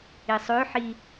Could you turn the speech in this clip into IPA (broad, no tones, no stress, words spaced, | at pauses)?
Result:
isˤøħi